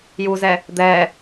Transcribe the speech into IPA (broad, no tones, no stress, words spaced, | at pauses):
juzɛ | d̪ɛ